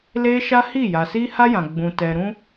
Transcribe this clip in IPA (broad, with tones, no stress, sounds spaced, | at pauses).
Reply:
l eː˦ ʃ a˦ h i˦˨ j a˨ s iː˦ h a˦ j ã˨ ɡ͡b ũ˨ t ɛ˨ ɾ ũ˦